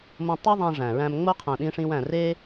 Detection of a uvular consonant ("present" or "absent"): present